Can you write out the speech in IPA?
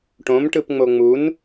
ʈ õ m ʈ ɯ p ŋ͡m o ŋ͡m u n

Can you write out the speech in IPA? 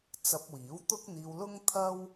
t͡s ɐ˧ p̚ w iː˨˥ w t̪ ʊ˥ k̚ n̪ iː˧ w l ʊ˥ ŋ t̪ʰ ɐ˥ w

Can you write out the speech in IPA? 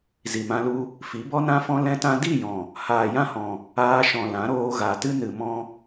z i˨ m ã˧ l u˧ | f i˨˦ b ɔ˦ n ã˦ f ɔ̃˦ l ɛ̃˦ t ã˦ d i˦˨ j ɔ̃˨ | h aː˨ j ã˦˨ h ɔ̃˨ | aː˧ ʃ ɔ̃˨ l ã˨˦ ɾ oː˧ ɣ a˨ t ɨ˦ n ɨ˨ m ɔ̃˧

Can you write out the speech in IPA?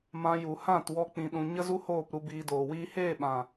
m ã˧ j u˨ h ã˦˨ t w ɔ˧ k͡p ĩ˨ ɗ ũ˨ ɲ ə˦ z u˦ h oː˦˨ p ɾ u˧ b iː˧ d oː˨ w iː˦ h eː˦˨ ɓ ã˨

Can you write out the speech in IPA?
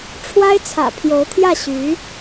ʈ͡ʂʰ w a˥ ɪ̯ t͡sʰ ä̰˨˩ pʰ j o˧˥ ʊ̯ t̪ʰ j ä˥˩ ɕ y˧˥

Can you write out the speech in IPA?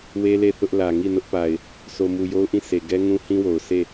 w e˦ l e˦˨ θ ʊ˦ ʔ l ä˨ ŋ i˦˨ n ʊ˦ ʔ p a˨ ɪ̯ | sʰ o˨ m u˨ j o˦ ʊ̯ ʔ ĩ˦˨ s e˨ ɡ ɛ˦ ŋ ũ˦ h ĩ˦ w o˨ ʊ̯ s e˦˨

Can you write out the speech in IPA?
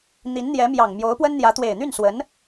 n̪ i˧˥ n n̪ j ɛ˧˥ m j ɑ˨˩ ŋ m j o˧˥ ʊ̯ p w ə˥ n n̪ j ä˧˥ t̪ w e˨˩ ɪ̯ n̪ y˥˩ n s w ə˧˥ n

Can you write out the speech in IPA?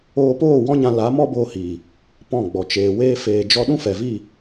oː˧ p oː˦˨ w ɔ̃˦ ɲ ã˧ l a˨˦ m ɔ˦ b oː˧ h iː˨ | p ɔ̃˦˨ ɡ͡b ɔ˨ t͡ʃ eː˨ w eː˧ f eː˨ d͡ʒ ɔ˧ ɗ ũ˦ f ɛ˨ v i˦˨

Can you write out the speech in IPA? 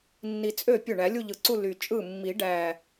nː i˨˩ t͡sʼ ø˥˩ pʲ ø˥˩ ɳ æ˨˩˦ lʲ u˥˧ ʎ ɯ˨˩ ǀ u˥˧ l y˨˩ t͡ʃʼ ɯ˥˩ mː i˨˩˦ ɖ æ˨˩

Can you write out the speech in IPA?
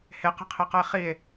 h e q e̤ qʰ e q ʌ e̯ χ i e̯

